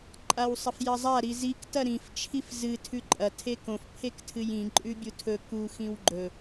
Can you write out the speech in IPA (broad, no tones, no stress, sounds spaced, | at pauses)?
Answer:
ǃʼ a w sˤ ɐ f j ɐ zˤ a ɾ i z i k t ɐ ɾ ĩ f t͡ʃʰ i f z ɨ tʰ ʉ ǃʼ ɐ tʰ e k õ f pʰ e k tʰ ɨ j ĩ ǃʼ ʉ bʲ u tʰ ɵ k u x ĩ w ɡ͡ǃ ɵ